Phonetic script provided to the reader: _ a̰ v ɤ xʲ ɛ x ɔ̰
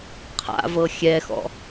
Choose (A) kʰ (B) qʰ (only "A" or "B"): B